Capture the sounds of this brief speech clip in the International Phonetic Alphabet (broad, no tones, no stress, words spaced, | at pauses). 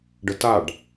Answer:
ɖətaɖ